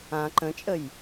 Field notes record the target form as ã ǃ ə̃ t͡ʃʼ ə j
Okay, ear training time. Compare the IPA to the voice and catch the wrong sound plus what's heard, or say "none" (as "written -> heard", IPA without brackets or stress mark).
none